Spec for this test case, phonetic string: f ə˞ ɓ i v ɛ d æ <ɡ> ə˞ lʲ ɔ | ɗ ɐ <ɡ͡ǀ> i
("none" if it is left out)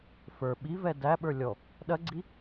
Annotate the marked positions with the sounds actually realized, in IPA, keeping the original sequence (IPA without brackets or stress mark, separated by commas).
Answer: ɓ, ɡ͡ǀ